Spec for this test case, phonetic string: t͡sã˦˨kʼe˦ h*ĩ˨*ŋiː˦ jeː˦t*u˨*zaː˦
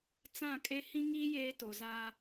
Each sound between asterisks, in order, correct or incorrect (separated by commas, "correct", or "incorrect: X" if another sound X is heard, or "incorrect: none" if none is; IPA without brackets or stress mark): incorrect: ĩ˦, incorrect: o˨